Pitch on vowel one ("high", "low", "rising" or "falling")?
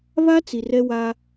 high